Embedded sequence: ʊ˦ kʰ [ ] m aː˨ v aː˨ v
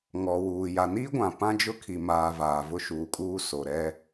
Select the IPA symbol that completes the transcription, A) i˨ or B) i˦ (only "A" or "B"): A